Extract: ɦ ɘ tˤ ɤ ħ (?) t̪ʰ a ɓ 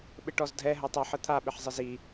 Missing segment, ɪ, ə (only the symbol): ə